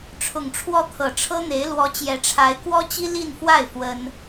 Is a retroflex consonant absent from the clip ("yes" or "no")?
no